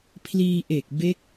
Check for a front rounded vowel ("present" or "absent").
absent